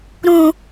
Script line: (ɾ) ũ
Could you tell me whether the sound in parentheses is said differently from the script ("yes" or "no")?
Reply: no